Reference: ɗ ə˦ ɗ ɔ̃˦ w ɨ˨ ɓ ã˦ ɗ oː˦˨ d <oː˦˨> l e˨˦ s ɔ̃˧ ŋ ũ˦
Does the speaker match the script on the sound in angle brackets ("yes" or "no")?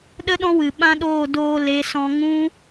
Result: no